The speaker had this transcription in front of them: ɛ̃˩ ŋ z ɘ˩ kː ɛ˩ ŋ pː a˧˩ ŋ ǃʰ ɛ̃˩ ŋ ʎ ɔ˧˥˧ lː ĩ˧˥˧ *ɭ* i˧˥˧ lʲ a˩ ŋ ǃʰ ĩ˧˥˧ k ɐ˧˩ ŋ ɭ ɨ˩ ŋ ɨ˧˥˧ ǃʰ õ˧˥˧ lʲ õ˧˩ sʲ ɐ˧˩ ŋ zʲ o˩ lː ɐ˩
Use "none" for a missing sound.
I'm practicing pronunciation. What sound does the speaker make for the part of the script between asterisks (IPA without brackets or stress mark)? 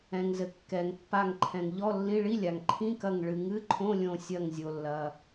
ɭ